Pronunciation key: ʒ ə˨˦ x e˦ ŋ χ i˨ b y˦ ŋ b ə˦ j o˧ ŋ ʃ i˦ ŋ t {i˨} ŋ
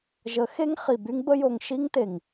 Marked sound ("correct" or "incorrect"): incorrect